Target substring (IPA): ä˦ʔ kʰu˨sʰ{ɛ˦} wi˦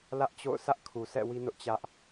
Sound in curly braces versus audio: incorrect: ɛ̰˦˨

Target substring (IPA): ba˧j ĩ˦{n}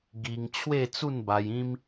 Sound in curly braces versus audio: incorrect: m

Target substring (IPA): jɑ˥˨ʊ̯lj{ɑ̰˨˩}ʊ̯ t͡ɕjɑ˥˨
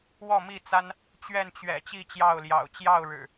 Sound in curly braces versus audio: correct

